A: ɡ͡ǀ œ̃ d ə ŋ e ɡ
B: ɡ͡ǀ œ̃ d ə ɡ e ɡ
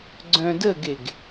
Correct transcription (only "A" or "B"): B